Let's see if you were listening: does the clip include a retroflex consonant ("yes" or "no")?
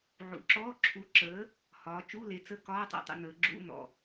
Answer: no